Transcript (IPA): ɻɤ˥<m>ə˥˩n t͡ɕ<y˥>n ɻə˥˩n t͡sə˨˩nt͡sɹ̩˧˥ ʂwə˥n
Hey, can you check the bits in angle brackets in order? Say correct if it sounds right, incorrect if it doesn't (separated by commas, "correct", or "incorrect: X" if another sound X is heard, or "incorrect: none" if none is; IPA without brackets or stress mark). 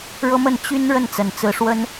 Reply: correct, correct